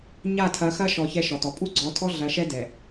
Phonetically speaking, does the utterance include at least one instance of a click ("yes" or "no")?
yes